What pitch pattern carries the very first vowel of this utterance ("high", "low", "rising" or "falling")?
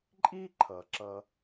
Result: high